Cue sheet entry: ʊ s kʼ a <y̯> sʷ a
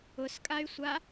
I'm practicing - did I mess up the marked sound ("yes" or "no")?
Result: no